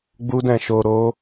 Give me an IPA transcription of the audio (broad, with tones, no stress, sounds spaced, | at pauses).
ɡ͡b u˧ d ɛ̃˨ ʃ o˨ ɾ o˨˦